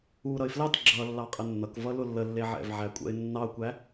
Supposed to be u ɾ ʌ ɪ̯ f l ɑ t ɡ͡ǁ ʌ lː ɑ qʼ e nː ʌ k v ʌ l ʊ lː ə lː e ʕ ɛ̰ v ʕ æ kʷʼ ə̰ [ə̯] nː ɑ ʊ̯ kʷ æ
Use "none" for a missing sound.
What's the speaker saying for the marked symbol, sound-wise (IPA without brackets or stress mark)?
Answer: ɪ̯